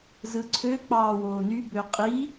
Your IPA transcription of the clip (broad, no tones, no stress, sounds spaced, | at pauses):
z ɯ ǀʰ ø k͡p ɑː w oː n y b ø qʼ i